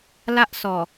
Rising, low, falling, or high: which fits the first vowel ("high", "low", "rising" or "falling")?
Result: high